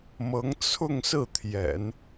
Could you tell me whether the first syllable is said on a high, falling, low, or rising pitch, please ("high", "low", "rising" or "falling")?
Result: rising